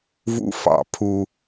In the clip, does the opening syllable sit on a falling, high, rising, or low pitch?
high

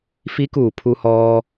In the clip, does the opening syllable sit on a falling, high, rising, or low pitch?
rising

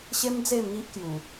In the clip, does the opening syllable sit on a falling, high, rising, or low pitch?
high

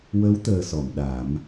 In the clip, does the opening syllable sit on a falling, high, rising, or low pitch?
rising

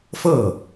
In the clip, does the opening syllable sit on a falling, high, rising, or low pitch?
falling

